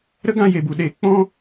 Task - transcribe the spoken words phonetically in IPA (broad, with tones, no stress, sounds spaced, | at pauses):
ɾ ə˦ ɡ ã˧ j e˨ b u˨ ɗ e˨˦ k͡p ɔ̃˦